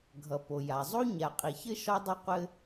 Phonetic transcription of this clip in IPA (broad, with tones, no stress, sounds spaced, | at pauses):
ɡʱ ʌ˨ p o˨ j a˨ zˤ o˦ ɲ a˨ qʼ i˨ ç ɘ˦ ʃ ɒ˦ dˤ ɘ˦ qʷ ɘ˦